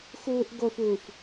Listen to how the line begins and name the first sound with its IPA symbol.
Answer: x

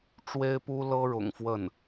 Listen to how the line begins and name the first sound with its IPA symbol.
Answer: ʈ͡ʂ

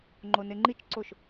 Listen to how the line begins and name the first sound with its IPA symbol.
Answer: ŋ͡ǃ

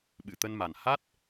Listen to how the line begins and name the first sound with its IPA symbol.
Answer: ɓ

